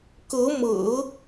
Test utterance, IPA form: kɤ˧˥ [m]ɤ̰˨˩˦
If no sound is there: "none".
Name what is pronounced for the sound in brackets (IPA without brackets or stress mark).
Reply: m